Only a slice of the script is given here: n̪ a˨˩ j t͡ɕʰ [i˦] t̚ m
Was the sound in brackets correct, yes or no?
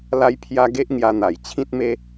no